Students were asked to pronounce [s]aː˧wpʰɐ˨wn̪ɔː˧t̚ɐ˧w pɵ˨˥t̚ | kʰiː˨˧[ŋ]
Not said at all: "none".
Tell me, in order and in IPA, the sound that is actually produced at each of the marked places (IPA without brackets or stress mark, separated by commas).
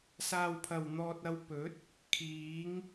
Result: s, ŋ